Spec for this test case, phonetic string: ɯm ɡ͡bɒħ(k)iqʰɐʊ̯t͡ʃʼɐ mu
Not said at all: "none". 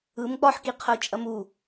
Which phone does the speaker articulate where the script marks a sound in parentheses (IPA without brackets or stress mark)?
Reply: k